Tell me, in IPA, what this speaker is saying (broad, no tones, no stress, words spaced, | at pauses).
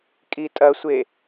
kʼitʼɐsʷe